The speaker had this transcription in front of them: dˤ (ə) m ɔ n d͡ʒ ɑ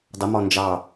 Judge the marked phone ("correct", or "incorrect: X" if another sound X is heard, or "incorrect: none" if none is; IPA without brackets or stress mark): correct